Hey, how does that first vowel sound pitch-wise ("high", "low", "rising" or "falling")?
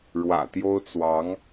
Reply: low